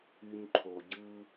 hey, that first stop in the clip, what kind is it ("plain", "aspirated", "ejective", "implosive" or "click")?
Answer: click